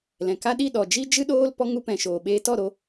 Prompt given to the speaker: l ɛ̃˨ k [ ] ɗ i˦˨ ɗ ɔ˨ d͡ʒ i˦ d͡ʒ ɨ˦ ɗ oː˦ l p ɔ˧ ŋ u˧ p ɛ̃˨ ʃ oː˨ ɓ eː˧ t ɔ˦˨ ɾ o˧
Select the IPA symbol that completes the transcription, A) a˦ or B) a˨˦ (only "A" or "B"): A